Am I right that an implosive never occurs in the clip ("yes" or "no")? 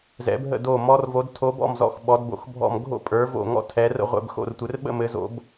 no